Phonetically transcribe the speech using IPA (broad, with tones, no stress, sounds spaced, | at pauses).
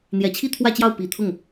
n̪ j ɛ˨˩ t͡ɕʰ i˥ t̪ʰ w ä˥˧ t͡ɕ j ɑ˥˩ ʊ̯ p i˨˩ t̪ʰ ʊ˥˩ ŋ